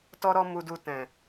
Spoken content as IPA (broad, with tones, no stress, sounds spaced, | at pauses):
t ɔ˦ ɾ ɔ˦ m u˧ d u˧ t ɛ̃˨